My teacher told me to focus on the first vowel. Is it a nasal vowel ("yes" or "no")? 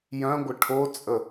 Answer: yes